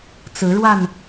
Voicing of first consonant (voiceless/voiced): voiceless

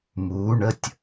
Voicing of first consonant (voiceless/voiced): voiced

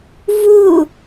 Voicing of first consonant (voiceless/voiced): voiced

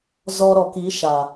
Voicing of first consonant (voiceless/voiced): voiced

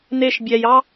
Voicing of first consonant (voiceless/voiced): voiced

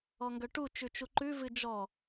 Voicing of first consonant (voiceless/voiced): voiced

